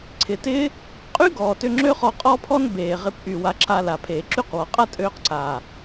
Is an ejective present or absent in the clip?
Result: present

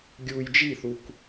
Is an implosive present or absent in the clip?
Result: absent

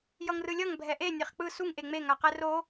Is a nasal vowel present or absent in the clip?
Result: absent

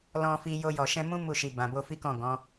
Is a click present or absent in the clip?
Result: absent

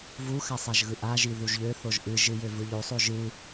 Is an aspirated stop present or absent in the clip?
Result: absent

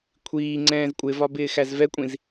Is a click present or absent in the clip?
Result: present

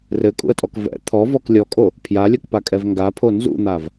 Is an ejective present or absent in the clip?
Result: present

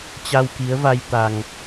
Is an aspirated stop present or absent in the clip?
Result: absent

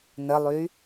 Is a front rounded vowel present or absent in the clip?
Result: present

